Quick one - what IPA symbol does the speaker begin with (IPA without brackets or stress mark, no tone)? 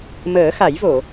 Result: m